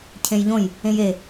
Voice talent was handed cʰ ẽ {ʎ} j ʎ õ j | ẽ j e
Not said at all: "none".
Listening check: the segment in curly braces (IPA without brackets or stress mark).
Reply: none